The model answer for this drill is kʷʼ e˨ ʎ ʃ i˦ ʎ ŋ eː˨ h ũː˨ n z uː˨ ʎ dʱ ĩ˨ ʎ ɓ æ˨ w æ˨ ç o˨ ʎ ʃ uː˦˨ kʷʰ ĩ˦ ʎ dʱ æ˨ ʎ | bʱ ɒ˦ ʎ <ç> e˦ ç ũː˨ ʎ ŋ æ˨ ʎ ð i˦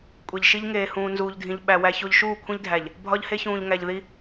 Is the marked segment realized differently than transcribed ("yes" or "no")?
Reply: yes